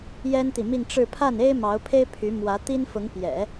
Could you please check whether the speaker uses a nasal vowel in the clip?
no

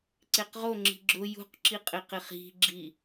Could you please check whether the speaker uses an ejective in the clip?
yes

